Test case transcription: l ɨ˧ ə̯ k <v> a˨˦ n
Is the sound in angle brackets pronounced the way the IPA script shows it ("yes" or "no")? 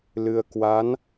no